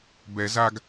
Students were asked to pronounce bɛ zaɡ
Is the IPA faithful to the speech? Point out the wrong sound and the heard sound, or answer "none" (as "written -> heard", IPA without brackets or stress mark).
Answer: none